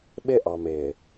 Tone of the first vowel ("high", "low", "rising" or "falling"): high